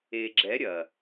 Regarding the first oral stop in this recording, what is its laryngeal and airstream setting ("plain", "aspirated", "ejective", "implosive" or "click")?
click